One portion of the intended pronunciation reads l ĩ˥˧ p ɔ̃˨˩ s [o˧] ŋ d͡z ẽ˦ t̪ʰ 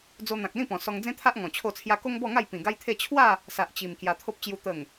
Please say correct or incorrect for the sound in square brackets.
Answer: incorrect: ɔ˧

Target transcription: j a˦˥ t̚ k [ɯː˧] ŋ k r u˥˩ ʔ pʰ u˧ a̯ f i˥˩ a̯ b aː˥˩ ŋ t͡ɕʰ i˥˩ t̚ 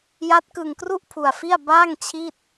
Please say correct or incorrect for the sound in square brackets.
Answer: incorrect: ɯ˧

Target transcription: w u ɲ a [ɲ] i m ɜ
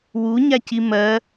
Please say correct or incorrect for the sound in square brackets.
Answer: incorrect: c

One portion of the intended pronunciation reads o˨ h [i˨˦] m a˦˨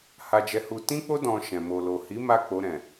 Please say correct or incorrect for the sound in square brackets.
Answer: correct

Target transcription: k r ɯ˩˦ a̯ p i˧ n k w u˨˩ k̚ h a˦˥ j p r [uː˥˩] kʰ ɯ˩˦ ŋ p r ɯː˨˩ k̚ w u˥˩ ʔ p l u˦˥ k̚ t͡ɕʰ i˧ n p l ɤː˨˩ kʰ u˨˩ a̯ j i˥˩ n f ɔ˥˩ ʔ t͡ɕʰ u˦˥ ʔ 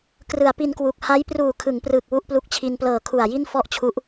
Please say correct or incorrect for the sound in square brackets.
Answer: incorrect: uː˨˩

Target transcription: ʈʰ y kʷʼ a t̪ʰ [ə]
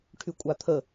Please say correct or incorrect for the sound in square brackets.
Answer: correct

